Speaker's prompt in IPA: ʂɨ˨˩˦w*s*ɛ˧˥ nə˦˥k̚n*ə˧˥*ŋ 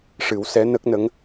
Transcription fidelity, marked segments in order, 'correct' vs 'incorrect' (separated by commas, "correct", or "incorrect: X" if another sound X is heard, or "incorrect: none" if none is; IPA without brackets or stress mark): correct, correct